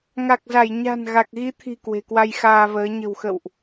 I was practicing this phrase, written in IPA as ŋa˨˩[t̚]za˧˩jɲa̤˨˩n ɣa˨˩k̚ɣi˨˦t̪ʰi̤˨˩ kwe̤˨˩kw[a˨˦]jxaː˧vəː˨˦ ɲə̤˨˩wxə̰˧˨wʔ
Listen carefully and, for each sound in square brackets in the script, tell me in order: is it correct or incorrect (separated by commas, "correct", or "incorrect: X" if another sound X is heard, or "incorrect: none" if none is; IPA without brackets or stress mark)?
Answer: incorrect: k̚, incorrect: a˧